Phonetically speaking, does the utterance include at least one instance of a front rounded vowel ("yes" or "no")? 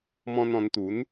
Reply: no